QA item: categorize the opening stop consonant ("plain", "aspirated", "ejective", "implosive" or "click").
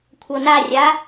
aspirated